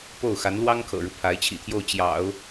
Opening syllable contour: falling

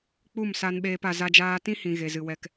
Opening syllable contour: falling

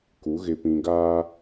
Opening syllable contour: rising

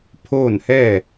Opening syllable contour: falling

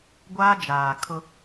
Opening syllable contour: high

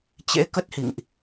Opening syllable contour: rising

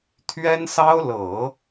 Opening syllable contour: high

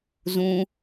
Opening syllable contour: high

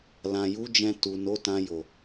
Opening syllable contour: low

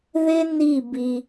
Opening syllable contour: high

